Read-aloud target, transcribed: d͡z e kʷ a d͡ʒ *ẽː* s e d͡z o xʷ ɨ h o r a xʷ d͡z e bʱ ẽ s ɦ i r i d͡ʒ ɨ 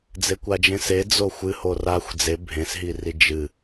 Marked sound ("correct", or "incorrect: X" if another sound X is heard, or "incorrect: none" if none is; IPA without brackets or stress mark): incorrect: ẽ